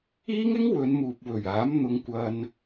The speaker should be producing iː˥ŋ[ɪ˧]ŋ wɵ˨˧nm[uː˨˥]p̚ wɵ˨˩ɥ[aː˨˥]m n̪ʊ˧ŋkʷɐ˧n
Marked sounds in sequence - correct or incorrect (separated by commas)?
incorrect, incorrect, correct